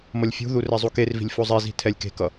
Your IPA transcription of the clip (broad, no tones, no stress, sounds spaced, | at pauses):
m ʌ lʲ fʲ ṳ ð u r ɛ zˤ u k e r v i̤ lʲ f o zˤ e z i̤ tʰ ɛ lʲ k e̤ k ʌ